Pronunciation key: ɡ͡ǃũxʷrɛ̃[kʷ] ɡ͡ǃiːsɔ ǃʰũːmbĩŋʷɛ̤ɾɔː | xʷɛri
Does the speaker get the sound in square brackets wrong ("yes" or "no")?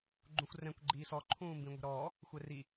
no